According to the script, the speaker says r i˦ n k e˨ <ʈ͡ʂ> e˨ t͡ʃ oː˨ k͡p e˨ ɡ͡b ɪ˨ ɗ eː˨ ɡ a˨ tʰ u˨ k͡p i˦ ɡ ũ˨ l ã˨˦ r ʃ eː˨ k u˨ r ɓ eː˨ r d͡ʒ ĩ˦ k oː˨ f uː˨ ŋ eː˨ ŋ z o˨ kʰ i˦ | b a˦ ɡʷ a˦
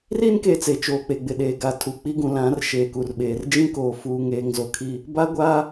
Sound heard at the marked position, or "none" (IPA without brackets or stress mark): t͡s